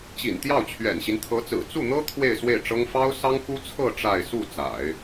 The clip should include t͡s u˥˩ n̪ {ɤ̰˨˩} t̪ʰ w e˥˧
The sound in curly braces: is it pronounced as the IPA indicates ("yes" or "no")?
no